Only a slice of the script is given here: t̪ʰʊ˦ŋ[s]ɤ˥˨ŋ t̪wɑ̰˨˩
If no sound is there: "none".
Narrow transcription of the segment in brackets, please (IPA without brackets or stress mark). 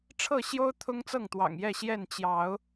t͡s